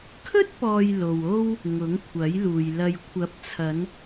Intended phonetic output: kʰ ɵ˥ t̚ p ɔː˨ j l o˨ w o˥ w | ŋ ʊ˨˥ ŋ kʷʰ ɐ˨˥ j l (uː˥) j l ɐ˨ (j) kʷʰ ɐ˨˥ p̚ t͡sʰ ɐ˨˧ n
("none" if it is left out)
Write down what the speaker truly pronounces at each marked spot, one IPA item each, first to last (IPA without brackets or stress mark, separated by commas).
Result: uː˨, j